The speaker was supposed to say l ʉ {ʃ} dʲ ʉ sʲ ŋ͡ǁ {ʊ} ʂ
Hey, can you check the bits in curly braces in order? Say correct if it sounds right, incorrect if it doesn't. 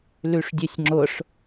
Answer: incorrect, correct

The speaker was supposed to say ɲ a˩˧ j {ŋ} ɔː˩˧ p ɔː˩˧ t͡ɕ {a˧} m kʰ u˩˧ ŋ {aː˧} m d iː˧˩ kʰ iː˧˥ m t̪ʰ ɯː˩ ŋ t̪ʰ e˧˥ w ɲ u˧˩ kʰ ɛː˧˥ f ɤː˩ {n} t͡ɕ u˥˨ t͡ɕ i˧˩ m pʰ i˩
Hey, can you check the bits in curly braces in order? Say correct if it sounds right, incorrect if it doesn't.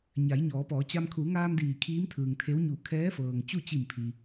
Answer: incorrect, correct, correct, incorrect

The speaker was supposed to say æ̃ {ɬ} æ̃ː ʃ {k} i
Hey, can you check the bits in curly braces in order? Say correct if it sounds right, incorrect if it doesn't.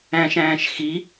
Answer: incorrect, incorrect

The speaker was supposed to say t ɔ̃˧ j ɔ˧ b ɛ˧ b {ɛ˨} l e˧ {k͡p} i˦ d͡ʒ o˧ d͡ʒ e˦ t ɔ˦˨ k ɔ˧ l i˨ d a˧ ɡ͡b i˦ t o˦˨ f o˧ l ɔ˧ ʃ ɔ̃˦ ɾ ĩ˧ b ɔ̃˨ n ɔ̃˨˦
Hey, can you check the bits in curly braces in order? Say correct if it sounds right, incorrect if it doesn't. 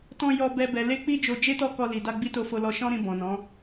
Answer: correct, correct

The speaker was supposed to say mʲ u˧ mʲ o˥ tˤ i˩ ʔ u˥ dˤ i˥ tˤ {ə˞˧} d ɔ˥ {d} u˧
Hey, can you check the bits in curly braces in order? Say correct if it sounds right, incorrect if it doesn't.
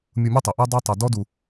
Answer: incorrect, correct

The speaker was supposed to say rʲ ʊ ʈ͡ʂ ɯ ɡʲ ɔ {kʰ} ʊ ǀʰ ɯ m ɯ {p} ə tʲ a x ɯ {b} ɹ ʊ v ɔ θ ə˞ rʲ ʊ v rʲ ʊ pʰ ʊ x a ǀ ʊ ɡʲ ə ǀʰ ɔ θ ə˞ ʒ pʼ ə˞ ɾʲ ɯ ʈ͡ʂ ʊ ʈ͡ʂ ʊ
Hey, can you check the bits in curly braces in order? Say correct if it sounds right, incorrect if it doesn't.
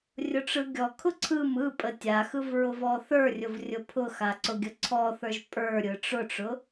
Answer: correct, incorrect, incorrect

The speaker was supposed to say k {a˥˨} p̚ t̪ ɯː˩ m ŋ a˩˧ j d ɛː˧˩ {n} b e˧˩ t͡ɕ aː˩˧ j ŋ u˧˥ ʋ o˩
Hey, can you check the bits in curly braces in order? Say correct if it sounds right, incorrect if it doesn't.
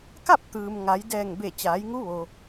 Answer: correct, incorrect

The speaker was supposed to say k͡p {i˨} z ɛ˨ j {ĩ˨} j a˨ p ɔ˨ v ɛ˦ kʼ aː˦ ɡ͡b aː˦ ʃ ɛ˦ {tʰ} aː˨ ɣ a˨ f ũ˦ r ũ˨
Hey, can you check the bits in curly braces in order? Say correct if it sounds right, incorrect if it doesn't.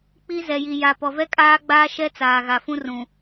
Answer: incorrect, incorrect, incorrect

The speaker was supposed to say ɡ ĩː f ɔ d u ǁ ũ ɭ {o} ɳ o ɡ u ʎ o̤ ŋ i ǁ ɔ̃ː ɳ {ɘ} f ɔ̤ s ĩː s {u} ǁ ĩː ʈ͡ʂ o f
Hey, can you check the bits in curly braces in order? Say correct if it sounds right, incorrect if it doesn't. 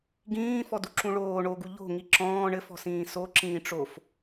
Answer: incorrect, correct, incorrect

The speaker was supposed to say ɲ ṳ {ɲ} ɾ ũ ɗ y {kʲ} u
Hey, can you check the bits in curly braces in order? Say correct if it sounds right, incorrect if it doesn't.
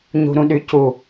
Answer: incorrect, incorrect

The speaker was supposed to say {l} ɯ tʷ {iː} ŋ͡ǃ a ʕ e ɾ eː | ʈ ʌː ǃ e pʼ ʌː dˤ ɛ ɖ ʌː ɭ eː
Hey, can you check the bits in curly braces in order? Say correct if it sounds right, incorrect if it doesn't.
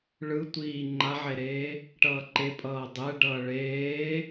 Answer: incorrect, correct

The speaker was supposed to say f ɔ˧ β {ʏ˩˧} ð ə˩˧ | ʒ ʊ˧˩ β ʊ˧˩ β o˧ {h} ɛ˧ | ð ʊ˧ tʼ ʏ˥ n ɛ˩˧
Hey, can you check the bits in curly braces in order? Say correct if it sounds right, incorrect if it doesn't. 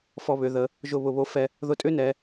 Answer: correct, incorrect

